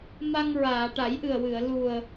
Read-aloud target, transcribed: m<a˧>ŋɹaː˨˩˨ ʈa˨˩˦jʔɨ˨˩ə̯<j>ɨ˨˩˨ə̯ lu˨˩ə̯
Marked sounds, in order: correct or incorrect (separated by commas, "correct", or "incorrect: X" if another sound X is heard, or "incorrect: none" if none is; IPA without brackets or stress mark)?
correct, incorrect: w